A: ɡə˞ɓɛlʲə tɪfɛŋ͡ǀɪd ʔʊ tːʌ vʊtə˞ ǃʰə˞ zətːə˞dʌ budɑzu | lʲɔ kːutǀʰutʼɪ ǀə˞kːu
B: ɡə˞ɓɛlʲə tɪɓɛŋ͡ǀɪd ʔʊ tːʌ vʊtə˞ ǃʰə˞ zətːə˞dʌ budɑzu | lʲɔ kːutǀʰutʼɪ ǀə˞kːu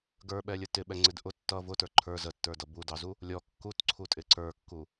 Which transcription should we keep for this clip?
B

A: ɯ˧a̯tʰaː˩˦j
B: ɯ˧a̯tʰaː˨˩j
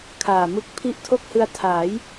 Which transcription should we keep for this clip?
A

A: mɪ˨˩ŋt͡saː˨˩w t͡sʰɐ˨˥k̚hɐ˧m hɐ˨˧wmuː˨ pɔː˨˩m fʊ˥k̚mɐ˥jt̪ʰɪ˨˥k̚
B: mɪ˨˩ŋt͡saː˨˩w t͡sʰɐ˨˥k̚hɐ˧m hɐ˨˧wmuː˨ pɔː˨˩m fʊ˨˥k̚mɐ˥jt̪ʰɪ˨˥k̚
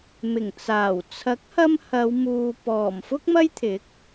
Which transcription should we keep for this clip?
A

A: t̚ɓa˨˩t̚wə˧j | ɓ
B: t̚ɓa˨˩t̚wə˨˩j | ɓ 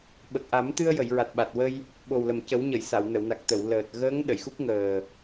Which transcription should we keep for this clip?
A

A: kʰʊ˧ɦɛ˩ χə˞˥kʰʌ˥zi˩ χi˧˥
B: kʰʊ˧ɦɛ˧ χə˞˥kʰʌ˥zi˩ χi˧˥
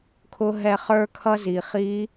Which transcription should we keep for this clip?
B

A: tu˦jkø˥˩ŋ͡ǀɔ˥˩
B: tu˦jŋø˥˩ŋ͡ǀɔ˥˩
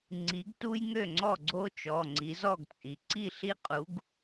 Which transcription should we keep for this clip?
B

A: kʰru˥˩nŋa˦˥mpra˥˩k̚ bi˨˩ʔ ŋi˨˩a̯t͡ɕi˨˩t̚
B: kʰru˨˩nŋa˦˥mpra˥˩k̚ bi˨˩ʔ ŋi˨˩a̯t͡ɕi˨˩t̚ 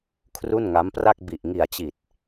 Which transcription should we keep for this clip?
A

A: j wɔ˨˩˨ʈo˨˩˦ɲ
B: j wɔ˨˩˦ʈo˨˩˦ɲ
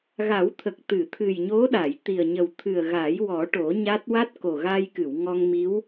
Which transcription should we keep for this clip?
B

